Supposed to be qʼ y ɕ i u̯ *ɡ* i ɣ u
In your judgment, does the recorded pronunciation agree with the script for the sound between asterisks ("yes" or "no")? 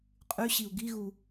yes